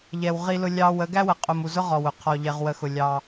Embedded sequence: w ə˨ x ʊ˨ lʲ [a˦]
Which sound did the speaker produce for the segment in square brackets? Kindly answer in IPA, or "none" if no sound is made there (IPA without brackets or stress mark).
ɑ˦